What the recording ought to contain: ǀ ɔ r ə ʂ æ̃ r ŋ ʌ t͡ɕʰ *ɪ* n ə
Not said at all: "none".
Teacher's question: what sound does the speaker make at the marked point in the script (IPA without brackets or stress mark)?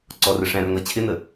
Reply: ɪ